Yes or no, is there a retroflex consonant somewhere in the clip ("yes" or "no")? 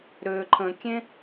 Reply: no